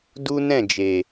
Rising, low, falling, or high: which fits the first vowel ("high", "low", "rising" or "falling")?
high